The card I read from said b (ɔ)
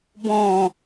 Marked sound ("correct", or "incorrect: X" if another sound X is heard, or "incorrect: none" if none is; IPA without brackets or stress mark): incorrect: ɔ̃